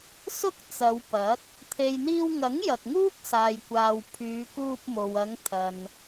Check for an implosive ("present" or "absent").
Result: absent